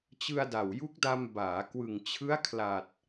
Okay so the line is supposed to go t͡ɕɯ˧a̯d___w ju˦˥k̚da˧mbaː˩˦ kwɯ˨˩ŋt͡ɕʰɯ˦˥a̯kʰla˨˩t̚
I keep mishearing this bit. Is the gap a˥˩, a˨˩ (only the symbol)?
a˨˩